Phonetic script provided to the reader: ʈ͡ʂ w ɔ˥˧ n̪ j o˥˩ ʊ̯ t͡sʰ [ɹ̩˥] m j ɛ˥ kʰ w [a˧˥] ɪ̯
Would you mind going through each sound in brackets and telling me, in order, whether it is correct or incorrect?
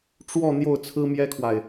correct, incorrect: a˨

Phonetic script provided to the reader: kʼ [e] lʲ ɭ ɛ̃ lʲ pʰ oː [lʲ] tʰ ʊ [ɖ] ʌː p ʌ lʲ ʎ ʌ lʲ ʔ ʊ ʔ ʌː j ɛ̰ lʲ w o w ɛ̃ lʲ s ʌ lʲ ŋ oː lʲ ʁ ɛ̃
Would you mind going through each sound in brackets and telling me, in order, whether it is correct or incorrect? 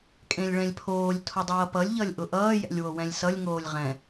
incorrect: ẽ, correct, incorrect: dˤ

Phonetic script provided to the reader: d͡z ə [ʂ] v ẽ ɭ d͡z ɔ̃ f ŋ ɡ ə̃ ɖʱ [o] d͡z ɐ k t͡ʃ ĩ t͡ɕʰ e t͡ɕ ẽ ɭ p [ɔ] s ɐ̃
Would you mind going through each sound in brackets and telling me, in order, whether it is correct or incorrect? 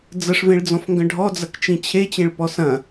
correct, incorrect: ɔ, correct

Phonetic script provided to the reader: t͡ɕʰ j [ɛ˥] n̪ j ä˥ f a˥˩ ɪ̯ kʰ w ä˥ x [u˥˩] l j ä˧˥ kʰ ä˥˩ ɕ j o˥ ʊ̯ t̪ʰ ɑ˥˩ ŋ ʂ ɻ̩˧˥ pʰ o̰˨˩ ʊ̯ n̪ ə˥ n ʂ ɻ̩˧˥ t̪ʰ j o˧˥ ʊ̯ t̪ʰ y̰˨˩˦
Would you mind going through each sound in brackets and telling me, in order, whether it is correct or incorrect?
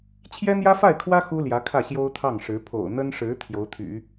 correct, incorrect: u˥

